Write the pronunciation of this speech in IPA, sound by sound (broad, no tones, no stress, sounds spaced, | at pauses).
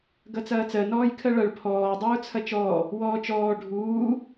ɡ ɐ t͡s ɐː t͡s ɜ n ɔː j kʰ ɜ ɭ ɐ ɭ pʰ ɔː dˤ uː t͡sʰ ɐ t͡ʃ ɔː | w ɔː t͡ʃ ɔː ɖʱ uː